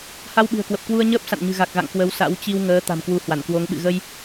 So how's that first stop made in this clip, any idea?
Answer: implosive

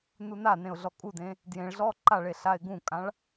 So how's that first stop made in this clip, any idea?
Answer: ejective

